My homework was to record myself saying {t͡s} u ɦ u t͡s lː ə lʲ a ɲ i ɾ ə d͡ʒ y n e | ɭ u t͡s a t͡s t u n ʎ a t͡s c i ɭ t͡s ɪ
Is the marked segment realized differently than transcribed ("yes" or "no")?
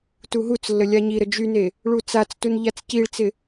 yes